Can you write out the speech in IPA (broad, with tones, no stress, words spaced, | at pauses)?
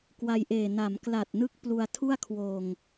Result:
kwa˧jʔeː˨˩ na˩˦mkla˨˩t̚nɯ˦˥k̚ plu˧a̯ tʰu˥˩a̯kʰwoː˨˩ŋ